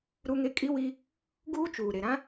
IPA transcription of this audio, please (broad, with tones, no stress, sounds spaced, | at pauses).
ɾ u˦ ŋ e˦ kʼ i˦ w i˦ | ɡ uː˦ t͡ʃ uː˨ ɾ e˨ ɾ ã˦